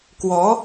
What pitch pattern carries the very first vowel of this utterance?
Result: rising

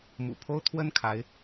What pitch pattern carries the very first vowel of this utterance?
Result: low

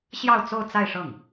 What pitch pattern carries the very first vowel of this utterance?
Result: falling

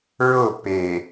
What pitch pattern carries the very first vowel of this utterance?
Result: falling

